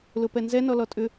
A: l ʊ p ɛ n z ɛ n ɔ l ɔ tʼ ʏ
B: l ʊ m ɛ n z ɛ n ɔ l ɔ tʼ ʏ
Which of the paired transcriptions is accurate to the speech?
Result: A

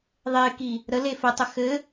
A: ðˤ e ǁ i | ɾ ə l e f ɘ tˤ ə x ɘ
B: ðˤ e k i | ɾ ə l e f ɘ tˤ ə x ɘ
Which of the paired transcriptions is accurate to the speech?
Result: B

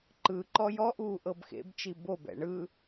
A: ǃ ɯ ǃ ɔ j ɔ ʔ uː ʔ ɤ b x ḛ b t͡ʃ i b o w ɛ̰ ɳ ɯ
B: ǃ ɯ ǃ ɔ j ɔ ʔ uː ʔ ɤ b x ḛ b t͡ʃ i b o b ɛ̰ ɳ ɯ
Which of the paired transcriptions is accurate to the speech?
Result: B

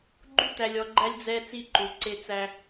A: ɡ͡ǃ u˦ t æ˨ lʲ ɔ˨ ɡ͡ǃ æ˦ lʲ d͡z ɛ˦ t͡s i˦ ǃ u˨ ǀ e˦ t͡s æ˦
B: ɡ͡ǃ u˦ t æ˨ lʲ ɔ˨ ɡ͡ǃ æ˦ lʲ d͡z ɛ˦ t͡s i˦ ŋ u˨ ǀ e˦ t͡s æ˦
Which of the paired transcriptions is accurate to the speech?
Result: A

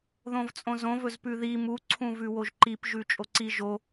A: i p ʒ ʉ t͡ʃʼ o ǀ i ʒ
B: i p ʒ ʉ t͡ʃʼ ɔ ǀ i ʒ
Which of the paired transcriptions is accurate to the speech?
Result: A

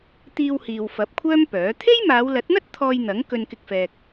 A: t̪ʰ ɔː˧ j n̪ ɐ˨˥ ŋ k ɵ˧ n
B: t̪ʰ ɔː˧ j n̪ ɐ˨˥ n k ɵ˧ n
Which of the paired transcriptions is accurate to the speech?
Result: A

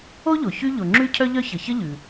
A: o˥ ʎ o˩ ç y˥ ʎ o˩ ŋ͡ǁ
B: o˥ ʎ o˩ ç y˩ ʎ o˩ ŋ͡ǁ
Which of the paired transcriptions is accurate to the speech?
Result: A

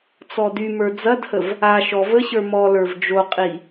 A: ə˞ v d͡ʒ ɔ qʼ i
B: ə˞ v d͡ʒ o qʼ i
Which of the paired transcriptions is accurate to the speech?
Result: B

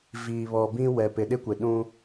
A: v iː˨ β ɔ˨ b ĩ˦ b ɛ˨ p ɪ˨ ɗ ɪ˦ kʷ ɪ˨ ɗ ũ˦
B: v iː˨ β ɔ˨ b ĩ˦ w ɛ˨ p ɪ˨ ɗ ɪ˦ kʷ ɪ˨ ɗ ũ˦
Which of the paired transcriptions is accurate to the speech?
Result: B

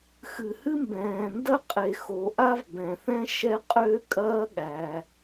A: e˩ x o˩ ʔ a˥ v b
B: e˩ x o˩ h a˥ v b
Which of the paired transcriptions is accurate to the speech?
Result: A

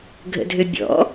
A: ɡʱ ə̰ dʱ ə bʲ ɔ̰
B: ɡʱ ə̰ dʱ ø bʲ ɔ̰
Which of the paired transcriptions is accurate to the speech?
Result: B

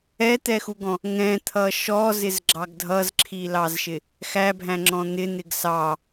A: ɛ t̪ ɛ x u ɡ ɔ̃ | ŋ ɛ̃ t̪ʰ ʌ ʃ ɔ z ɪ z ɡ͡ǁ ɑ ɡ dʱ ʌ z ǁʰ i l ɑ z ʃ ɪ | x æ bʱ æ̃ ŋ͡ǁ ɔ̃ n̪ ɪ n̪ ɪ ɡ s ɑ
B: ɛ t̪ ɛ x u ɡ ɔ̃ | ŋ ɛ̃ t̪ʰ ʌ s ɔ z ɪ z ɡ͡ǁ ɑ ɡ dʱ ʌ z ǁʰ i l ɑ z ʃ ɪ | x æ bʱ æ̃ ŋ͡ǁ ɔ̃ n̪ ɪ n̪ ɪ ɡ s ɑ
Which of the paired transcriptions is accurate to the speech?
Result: A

